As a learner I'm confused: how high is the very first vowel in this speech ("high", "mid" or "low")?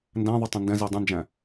low